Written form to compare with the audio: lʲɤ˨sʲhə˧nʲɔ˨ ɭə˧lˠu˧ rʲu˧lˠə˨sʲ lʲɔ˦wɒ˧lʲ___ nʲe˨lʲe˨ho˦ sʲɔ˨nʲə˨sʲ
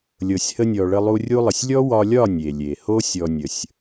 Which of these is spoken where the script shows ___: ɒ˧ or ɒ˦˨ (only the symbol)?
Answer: ɒ˦˨